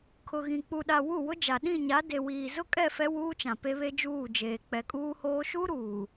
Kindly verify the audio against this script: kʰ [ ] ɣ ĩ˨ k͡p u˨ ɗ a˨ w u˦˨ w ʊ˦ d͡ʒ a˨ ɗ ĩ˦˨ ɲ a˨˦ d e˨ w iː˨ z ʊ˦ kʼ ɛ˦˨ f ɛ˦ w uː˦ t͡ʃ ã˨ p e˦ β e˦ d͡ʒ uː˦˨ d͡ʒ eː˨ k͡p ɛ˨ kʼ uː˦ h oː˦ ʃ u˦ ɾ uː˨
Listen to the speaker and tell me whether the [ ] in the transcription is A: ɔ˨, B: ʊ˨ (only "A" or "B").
B